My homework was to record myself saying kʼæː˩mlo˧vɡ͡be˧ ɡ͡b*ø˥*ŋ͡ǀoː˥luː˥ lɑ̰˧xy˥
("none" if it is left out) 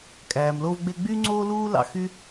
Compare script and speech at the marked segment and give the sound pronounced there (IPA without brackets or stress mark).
y˥